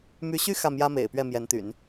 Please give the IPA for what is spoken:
m y˧˥ ɕ y˥ x ä˥˩ m j ä˥ m ḛ˨˩ ɪ̯ p ɥ ɛ˥˩ m j ɛ˧˥ n t̪ y̰˨˩˦ n

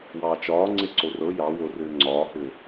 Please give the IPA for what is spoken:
w ɑː t͡ʃ ɒː ŋ͡ǀ e ǀ o r ɤ j ɑ w o r ʏː ŋ͡ǀ ɒː h ʏː

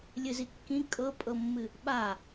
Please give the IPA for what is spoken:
lʲ ɨ z i kː ĩ kʼ ɤ pʼ ɤ mː ɨ | ɓ a

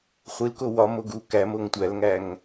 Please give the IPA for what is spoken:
χʷ i l k o w ɒ m o ɡ u k æ m o ŋ tʷ æ l ŋ æ ŋ

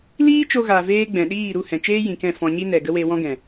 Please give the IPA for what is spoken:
l iː˦ t͡ʃ o˧ ɣ a˨ v eː˧ ɡ͡b ɛ̃˨ ɗ iː˦˨ ɾ u˦˨ h ɛ̃˨ t͡ʃ eː˦ j ĩ˨ k ɛ̃˦˨ f ɔ̃˧ ɲ i˦ n ɛ˨ ɡ ə˦ w e˧ w ɔ̃˦ ɡ ɛ̃˨

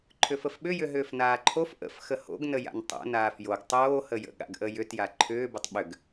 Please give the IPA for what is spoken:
ǃʰ ʏ f ə f ɓ ʏ j ʏ ɦ ʏː f n aː ǃʰ o f ʔ ə̰ f x ə h o̰ ɡ n ə j a̰ n tˤ o̰ n aː f j o ɡ tˤ oː h ə j ə̰ ɠ a̰ ɡ ʔ ə j ʏ t j a ǃʰ ʏː b ə tˤ ɓ ʏ ɡ

